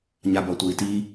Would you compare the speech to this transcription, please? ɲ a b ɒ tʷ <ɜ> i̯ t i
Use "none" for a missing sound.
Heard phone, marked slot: ɜ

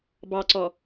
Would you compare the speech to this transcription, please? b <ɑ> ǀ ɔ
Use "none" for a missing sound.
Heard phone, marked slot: ɑ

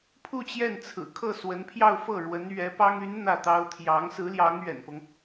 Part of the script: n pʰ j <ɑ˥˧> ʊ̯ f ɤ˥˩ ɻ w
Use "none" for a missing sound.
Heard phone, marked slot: ɑ˥˧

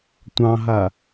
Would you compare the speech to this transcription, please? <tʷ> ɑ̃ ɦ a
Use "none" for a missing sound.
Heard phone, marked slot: tʷ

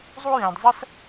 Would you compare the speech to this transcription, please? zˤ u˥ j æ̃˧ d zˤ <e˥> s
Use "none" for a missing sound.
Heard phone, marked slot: ɛ˥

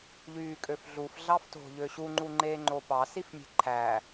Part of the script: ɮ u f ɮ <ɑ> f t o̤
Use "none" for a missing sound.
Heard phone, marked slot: ɑ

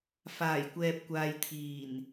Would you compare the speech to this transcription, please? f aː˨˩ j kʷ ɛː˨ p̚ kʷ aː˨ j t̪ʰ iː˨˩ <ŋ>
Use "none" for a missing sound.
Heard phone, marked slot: n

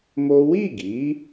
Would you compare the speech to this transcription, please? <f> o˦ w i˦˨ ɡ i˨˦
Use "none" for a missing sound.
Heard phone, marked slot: m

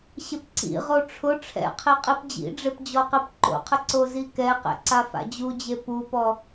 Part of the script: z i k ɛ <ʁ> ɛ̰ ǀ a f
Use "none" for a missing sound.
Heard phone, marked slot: q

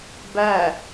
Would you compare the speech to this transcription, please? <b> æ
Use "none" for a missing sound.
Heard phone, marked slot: b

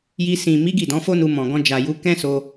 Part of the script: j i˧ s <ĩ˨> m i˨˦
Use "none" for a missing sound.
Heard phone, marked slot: ĩ˨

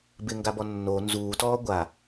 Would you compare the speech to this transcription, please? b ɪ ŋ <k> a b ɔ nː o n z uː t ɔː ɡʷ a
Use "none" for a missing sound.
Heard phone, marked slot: ɡ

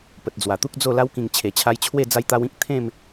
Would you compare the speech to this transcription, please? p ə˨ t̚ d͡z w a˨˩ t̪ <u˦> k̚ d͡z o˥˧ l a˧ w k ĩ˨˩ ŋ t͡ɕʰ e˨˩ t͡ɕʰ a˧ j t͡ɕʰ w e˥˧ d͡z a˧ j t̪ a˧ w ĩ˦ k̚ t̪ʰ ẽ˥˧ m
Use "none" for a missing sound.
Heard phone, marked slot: u˦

